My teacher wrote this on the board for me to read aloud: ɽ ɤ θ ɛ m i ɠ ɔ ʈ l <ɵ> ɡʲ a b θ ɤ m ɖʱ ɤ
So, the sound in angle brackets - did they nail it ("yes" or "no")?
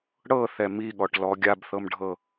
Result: no